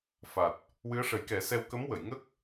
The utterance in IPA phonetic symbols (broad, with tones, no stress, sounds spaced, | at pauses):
f a˨˩ t̚ | w ɨ˧˥ ə̯ ʂ ə˨˩˦ j k ɛ˨˩˦ s ɛ˧ w k ə˧˥ m w ə˨˩˨ j ŋ ə˦˥ k̚